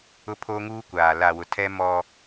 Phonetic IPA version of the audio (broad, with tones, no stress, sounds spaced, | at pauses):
ʊ˦ pʰ o˦ ŋ uː˦ kʷ aː˨ l a˨ w ʊ˨ tʰ ɛ˦ m ɔ˦